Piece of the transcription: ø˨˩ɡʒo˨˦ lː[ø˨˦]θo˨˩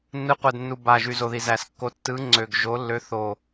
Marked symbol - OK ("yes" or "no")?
yes